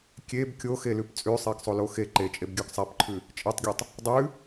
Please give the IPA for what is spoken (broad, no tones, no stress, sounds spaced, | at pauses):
kʲ e b kʲ o x e l ʉ p t͡sʼ ʉ sˤ e ɡ sˤ o l o x e ǃ e t͡ʃʼ e b ɡʲ ʉ ɡ sˤ a p ǃʰ ʉ | t͡ʃʼ e tˤ ɡʲ o tˤ | dˤ ʉ